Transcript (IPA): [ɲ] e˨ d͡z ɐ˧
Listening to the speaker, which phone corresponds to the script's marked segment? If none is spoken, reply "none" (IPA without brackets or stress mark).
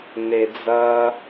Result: n